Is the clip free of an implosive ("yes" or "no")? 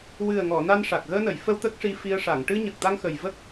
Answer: yes